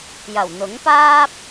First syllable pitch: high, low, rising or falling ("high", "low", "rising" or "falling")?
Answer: low